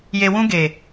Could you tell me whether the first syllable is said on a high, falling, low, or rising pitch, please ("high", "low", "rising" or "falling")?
low